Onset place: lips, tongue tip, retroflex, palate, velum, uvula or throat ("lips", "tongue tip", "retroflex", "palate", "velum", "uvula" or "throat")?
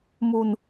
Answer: lips